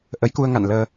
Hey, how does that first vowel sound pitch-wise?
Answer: rising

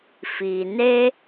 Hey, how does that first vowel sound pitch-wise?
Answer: low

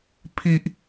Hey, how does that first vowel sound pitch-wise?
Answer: high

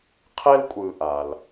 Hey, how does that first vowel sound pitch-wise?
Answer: high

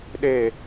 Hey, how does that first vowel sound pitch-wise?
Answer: falling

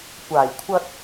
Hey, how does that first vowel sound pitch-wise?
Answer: low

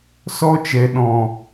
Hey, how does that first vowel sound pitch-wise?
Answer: high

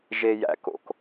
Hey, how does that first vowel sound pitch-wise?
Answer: low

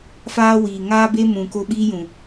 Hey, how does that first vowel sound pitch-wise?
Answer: high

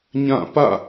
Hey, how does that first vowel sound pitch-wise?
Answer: falling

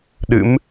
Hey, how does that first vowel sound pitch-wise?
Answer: rising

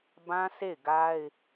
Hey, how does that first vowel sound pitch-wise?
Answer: high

